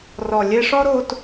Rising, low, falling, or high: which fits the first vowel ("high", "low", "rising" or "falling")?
low